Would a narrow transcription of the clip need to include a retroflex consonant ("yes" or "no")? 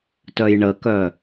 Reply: yes